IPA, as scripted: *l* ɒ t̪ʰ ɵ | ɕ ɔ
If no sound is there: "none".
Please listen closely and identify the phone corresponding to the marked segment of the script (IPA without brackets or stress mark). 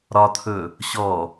ɾ